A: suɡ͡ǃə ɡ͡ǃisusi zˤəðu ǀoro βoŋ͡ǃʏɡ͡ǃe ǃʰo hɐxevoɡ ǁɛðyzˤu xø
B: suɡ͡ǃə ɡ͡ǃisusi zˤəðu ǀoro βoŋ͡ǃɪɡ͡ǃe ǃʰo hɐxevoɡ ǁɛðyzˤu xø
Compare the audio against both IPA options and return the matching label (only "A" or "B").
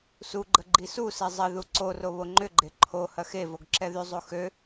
A